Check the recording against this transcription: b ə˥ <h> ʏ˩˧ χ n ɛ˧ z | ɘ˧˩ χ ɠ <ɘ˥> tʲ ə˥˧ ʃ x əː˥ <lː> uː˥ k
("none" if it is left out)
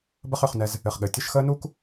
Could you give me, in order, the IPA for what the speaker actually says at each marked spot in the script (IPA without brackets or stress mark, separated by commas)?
χ, ɘ˩˧, n